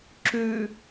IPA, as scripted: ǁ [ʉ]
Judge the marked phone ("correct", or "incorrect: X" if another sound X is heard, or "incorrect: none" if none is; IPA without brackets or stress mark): correct